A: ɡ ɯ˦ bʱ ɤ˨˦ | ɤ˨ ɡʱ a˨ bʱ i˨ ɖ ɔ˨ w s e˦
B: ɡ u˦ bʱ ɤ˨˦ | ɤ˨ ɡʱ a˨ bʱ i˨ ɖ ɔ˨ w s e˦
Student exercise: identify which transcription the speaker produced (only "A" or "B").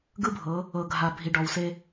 A